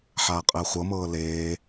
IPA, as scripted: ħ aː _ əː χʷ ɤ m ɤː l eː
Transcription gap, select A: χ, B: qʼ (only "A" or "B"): B